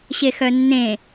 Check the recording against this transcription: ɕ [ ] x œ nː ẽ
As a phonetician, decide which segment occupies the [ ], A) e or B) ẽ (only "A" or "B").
A